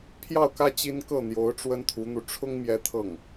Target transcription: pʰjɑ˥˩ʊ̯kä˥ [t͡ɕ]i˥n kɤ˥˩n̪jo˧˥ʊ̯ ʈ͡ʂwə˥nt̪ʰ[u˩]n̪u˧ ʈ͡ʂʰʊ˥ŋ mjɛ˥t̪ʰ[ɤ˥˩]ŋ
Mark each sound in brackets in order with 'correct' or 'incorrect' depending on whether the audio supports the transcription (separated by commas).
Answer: correct, incorrect, correct